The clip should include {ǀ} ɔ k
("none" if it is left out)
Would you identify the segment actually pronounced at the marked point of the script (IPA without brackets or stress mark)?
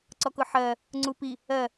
ǀ